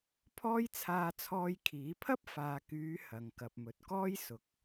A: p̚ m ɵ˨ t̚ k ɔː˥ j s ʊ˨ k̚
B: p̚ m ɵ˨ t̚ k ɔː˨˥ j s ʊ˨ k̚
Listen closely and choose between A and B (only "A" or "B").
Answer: A